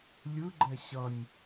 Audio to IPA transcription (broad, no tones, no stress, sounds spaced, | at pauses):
lʲ ɯ ɡ͡ǃ ɛ ɕ ʌ nʲ